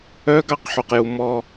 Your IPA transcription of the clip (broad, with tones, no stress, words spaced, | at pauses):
œ˦ɡɑ˦˨qħu˨qju˨ mɔ˦